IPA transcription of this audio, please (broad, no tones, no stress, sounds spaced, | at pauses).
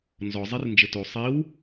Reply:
n z ɔ zˤ i r n d͡ʒ ɘ t o sˤ i w